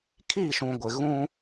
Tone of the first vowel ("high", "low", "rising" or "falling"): falling